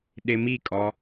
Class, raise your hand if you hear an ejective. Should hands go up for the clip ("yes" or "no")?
yes